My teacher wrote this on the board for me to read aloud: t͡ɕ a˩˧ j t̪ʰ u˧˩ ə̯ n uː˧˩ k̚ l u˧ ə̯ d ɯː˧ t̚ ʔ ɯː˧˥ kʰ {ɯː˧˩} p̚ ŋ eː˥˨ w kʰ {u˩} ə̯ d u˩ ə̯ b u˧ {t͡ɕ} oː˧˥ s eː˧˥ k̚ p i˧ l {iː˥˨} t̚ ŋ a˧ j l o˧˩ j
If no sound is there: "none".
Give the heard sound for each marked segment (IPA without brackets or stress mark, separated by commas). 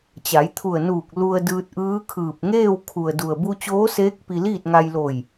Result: ɯː˧˩, u˩, t͡ɕ, iː˥˨